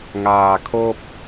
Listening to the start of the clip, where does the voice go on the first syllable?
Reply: low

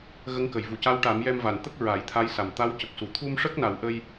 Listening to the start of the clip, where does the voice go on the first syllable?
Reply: rising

